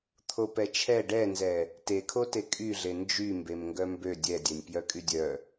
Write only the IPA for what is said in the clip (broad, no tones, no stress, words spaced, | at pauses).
t̪ʰopɛt͡ʃʰɛ ɖɛnzɛ | tekʰote kʼyɮe nd͡ʒy mbemŋɡœmbø dʲɛdʲɛnʲpjœ kʼydʲœ